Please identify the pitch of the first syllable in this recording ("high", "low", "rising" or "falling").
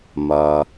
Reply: low